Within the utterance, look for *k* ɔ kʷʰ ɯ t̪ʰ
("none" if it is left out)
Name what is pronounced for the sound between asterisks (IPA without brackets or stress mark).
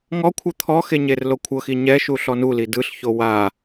ŋ